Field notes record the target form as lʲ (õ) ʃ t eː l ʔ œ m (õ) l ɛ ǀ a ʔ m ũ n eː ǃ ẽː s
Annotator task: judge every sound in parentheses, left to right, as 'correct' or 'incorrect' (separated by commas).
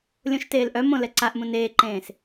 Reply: correct, correct